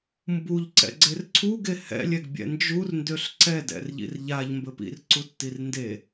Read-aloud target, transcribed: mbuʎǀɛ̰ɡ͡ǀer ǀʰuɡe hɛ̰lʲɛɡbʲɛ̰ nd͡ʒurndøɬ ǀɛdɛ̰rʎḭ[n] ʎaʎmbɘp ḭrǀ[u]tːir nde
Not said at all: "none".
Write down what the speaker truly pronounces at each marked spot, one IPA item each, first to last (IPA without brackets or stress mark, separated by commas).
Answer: r, u